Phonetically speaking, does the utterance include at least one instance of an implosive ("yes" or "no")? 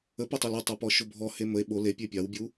yes